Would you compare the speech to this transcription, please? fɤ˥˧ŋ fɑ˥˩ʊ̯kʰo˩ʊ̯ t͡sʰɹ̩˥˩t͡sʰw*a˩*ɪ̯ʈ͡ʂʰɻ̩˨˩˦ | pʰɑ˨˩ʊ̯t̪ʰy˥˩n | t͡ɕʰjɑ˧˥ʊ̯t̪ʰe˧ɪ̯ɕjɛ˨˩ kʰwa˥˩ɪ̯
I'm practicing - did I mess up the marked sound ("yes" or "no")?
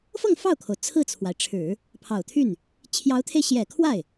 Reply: no